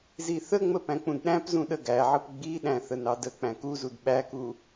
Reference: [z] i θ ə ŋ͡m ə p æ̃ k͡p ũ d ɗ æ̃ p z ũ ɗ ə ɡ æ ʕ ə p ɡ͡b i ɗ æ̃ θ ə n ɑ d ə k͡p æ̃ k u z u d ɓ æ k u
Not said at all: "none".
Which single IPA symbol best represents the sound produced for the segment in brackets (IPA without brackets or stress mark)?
z